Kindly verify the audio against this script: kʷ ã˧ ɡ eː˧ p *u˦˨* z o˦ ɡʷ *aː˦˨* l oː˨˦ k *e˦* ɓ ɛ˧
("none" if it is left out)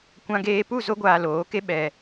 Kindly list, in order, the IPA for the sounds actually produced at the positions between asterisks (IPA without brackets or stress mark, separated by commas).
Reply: u˦˨, aː˧, e˦